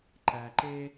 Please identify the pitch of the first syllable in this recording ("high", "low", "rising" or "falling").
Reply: low